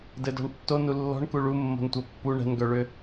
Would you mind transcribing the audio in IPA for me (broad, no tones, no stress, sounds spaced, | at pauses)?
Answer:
d ɘ d ɔ̤ ɳ tː o n u lː ɔ̤ ɳ k u ɭ u mː o̤ n tʷ ɛ pː u ɳ ɛ̤ n ɡ œ ɭ ʏ